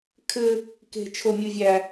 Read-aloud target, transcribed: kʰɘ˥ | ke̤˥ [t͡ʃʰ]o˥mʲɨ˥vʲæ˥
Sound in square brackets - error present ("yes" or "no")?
no